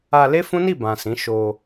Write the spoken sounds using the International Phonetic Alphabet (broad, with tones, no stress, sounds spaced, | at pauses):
a˧ l e˦ f ũ˦ n i˦˨ b ã˨ s ĩ˨˦ ʃ o˧